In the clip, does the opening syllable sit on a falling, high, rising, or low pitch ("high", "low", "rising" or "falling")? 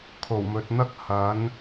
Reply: low